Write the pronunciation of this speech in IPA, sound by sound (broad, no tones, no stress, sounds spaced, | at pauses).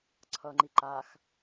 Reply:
ǀʰ ʌ ŋ͡ǃ i ǃ a x